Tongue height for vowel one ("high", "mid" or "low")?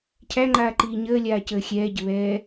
low